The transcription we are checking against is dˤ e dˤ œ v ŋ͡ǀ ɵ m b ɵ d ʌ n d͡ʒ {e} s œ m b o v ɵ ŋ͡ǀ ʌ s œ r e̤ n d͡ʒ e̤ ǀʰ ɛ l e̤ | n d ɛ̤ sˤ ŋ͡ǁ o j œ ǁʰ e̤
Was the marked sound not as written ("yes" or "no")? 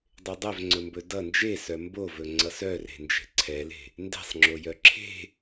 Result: no